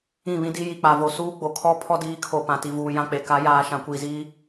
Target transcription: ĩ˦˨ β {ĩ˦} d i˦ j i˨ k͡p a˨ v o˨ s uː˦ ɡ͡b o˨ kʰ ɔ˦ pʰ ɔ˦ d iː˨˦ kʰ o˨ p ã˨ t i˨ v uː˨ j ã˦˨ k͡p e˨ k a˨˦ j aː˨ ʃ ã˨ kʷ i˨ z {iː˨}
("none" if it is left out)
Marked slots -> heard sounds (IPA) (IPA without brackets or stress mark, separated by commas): ĩ˦, iː˦